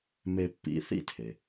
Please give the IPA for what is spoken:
m e˧ pː ḭ˧ θ ḭ˥ tʰ e˩

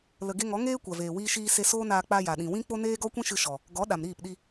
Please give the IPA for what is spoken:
l ə˨ ɡ e˧ ŋ ɔ˨˦ ŋ eː˦ kʷ a˨ v eː˨ w iː˧ ʃ iː˧ s e˧ s oː˦ n aː˧ k͡p a˧ j a˨ ɗ ĩ˨ w ĩ˦ k͡p o˦ n eː˦ ɡ ɔ˦ kʷ ĩ˦ ʃ ɨ˧ ʃ ɔ˨ | ɡ ɔ˨˦ ɗ a˨ m ɾ iː˦˨ p ɗ i˧

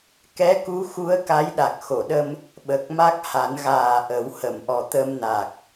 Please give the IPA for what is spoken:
k ɛ˧˥ k u˧˥ x u˧˥ ə̯ k a˧˥ j ɗ a˨˩ k̚ x o˨˩˨ ɗ ə˧ m | ɓ ə˨˩ k̚ m a˦˥ k̚ h a˨˩˦ n ɣ aː˨˩ ʔ ə˨˩˦ w h ə˨˩˨ m ʔ ɔ˨˩ t̪ ə˧ m n a˨˩ k̚

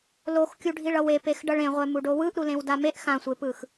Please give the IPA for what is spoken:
l o x kʲ u ɖʱ i ɭ ʌ w e p e x ɖ ʌ ɭ ẽ ʁʷ ɛ m u ɖ o w ɯ ʔ ɾ u l ẽ w d a m e ʔ x ã sʷ e p ɯ x

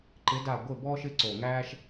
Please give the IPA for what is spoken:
ǃ ɪ˧˥ d a˦˨ ɡʷ ɪ˦˨ b ɔː˥ ʃ ɪ˧˥ ǀ o˨˩ ŋ æː˥ ʃ

